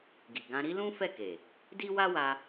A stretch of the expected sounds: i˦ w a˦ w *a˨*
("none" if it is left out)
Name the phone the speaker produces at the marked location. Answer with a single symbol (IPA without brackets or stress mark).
a˧